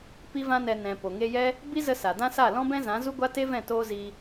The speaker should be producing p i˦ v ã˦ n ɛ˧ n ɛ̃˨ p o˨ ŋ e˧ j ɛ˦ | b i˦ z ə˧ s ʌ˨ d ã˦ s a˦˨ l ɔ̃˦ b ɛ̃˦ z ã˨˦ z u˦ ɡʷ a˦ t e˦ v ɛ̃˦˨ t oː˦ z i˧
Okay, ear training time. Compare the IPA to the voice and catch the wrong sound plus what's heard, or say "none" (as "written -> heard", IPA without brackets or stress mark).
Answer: ʌ˨ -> a˨